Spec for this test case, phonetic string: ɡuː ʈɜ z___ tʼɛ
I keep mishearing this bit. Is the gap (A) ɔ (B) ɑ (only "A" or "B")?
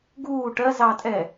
B